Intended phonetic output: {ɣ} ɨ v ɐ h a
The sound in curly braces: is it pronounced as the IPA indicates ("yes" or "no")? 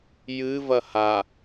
no